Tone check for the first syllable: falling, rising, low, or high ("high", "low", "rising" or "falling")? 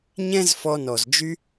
high